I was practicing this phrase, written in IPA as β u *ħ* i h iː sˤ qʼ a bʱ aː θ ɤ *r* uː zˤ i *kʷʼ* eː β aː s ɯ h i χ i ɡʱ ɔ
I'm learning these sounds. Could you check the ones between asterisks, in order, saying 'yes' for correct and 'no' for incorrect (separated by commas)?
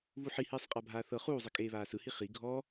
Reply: yes, no, no